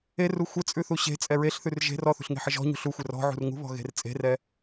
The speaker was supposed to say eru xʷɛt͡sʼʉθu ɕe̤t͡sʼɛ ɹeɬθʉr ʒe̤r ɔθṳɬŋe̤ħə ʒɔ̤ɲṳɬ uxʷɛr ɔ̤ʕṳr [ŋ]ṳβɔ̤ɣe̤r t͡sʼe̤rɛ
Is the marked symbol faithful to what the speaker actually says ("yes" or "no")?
yes